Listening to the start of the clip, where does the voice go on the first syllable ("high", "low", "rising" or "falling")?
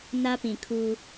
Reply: high